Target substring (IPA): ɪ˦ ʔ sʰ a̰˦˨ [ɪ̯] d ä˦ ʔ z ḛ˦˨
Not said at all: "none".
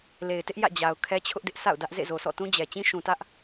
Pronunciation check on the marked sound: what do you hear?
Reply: ʊ̯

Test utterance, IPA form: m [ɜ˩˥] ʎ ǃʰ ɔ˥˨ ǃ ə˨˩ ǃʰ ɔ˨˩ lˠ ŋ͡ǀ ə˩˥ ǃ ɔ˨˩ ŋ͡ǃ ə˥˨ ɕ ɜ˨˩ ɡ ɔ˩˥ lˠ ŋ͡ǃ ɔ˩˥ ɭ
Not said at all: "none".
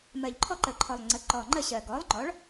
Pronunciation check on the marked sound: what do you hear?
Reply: ɜ˨˩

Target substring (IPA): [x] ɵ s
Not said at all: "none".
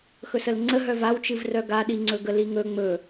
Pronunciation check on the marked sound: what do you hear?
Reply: x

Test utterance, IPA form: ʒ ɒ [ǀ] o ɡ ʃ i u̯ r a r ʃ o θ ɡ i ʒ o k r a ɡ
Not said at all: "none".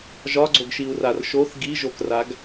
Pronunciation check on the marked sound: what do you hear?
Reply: ɡ͡ǀ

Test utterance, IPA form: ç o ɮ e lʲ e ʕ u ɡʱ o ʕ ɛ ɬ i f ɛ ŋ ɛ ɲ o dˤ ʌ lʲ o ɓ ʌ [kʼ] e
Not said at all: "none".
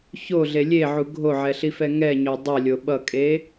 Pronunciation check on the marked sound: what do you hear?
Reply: kʼ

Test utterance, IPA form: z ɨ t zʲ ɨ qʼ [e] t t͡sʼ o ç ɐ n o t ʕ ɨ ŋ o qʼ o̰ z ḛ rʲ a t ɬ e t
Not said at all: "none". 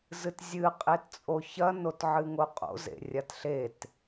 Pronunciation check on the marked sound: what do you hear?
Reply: e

